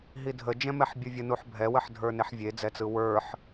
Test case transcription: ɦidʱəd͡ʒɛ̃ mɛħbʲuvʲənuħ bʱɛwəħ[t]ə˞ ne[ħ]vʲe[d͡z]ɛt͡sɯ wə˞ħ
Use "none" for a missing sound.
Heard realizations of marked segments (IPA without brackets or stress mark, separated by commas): dʱ, ħ, d͡z